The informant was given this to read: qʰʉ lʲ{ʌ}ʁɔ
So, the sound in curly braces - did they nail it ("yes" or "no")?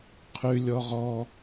no